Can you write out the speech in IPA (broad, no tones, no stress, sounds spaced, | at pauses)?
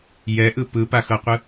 j ɛ ʔ ɯ p ɯ p a x ɤ qʷ ɯ